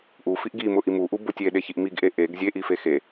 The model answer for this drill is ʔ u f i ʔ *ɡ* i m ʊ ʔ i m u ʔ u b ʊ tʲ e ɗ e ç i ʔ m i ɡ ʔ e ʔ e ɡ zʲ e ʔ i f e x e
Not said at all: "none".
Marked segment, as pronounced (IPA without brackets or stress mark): ɡ